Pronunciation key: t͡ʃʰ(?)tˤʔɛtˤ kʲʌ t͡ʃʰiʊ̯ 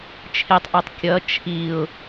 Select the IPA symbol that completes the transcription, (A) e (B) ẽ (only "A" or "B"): A